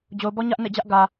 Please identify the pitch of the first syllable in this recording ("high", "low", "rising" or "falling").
low